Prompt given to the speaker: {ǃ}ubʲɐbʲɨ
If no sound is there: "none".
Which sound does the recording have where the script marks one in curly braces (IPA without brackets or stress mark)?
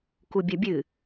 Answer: k